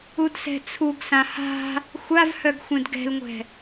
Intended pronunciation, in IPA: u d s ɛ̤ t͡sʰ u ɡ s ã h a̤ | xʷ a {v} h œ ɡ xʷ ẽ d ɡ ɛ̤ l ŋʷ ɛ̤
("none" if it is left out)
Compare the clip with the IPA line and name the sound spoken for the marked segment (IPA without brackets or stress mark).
v